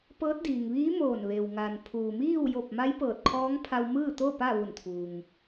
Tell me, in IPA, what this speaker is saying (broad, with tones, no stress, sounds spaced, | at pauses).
p ɤː˧˥ t̚ d iː˩ ŋ ʋ iː˧˥ m oː˧˩ n ʋ e˩ w ŋ a˩ n pʰ uː˩ m iː˥˨ w j o˧˩ p̚ m a˧˥ j p ɤː˧˩ t̚ kʰ ɔː˧˥ ŋ pʰ a˧ w m ɯː˥˨ t̪ o˥˨ p a˥˨ ʋ u˧˩ n t̪ʰ uː˩ ŋ